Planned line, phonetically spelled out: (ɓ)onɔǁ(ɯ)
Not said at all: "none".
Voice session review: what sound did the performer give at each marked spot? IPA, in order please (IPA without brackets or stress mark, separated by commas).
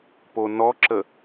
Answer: p, ə